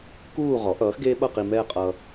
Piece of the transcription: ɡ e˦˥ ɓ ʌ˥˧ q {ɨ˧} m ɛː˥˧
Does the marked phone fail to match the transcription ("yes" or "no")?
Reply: yes